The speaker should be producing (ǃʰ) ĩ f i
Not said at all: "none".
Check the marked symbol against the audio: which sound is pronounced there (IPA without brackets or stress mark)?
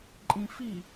ǃʼ